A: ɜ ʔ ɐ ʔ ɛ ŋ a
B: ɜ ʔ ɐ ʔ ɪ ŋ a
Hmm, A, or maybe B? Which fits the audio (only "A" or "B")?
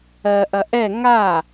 A